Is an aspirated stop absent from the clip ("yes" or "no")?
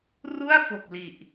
yes